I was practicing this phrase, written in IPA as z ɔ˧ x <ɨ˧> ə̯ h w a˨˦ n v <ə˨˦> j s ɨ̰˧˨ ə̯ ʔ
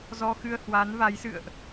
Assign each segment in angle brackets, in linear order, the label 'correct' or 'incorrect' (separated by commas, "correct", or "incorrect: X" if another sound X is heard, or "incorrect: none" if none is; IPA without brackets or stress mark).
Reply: correct, incorrect: a˨˦